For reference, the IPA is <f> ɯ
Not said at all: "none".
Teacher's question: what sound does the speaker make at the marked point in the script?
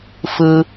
f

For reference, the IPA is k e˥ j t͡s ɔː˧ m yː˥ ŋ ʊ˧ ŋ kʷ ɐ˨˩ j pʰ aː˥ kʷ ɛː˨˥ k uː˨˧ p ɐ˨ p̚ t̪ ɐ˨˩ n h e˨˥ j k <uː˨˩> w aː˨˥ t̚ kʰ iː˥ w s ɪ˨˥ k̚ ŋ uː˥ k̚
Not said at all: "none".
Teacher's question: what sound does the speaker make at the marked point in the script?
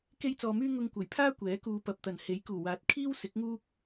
uː˨˩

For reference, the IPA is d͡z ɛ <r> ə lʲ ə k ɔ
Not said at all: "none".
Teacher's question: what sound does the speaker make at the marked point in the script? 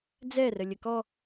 r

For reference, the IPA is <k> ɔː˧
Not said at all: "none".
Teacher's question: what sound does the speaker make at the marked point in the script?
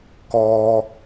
k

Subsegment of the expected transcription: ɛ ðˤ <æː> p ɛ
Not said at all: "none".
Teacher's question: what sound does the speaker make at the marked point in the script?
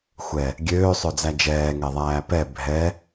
æː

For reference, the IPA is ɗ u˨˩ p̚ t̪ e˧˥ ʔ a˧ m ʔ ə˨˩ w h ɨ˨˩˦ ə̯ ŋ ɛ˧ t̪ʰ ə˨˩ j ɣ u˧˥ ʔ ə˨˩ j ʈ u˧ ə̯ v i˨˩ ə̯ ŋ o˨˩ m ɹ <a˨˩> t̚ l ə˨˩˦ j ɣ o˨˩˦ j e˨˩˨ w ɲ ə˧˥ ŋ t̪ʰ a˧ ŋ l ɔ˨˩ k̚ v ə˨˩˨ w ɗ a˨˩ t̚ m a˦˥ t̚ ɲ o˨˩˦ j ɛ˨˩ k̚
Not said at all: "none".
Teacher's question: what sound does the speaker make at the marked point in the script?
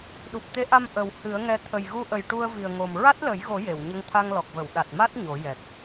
a˦˥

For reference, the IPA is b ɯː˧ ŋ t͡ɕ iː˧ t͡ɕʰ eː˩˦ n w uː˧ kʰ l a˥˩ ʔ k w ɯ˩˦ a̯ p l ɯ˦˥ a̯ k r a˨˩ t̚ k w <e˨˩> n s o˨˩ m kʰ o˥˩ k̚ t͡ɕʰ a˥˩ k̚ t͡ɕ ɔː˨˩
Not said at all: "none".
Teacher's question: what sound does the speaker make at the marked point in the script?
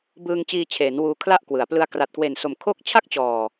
e˨˩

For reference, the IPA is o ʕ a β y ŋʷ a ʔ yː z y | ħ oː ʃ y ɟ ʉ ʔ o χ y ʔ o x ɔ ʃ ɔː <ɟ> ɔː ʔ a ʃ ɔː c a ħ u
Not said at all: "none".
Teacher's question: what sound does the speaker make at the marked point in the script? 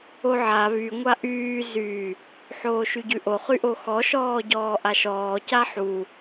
ɟ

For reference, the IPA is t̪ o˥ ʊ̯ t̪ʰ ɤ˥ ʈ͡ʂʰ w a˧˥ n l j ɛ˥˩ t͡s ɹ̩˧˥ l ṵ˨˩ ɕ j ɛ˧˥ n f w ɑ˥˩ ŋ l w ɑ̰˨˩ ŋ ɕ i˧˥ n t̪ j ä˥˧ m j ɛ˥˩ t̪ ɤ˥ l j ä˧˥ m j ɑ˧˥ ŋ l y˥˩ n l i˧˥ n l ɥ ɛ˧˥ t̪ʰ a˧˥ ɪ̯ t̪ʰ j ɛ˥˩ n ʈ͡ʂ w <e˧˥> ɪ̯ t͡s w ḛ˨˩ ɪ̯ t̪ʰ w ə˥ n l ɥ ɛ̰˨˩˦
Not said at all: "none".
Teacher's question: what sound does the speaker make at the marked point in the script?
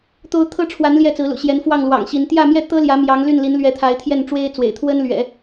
e˥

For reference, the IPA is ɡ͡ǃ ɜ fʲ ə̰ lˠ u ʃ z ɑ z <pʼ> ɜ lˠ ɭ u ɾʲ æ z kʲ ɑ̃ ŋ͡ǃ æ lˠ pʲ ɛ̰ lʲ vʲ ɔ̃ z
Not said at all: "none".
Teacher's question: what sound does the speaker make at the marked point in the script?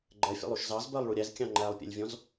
b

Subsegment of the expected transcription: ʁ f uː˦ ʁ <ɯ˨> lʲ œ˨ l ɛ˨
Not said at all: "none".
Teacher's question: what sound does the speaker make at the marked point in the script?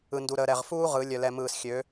ɯ˨˦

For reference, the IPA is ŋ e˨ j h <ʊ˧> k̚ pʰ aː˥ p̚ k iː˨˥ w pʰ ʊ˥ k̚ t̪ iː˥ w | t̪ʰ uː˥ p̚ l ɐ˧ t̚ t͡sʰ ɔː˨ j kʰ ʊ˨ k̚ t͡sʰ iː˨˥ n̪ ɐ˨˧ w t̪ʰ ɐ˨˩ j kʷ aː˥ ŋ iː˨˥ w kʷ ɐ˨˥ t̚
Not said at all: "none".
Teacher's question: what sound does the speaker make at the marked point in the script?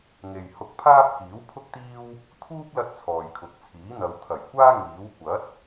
ʊ˧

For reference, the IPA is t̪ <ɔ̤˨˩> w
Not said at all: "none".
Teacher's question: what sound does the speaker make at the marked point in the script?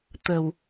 ə̤˨˩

